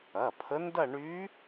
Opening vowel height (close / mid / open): open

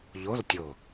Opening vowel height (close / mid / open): mid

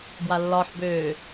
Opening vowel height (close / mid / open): open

